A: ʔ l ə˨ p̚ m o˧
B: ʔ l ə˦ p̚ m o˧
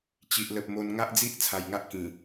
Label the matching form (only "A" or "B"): A